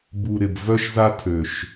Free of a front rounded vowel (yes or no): no